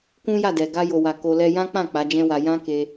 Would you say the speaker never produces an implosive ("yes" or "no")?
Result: yes